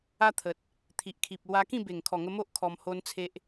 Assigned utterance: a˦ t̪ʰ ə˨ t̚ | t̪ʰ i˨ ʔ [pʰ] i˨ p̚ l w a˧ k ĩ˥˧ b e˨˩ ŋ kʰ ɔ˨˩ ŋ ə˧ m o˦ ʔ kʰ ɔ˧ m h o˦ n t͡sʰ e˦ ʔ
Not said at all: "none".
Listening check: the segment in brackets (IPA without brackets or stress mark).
kʰ